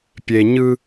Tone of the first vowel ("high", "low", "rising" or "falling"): low